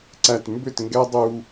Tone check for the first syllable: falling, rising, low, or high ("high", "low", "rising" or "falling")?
low